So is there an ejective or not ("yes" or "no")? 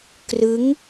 no